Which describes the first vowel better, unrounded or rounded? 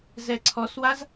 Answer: unrounded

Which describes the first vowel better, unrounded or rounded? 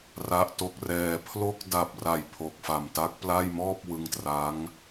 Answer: unrounded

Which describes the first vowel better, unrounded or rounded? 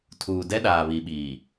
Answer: rounded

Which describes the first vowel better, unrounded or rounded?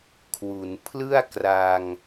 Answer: rounded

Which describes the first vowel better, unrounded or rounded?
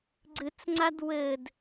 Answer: unrounded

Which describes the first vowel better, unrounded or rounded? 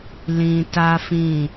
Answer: unrounded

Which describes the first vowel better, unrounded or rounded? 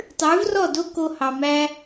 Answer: rounded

